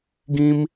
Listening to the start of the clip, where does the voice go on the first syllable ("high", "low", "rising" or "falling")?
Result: high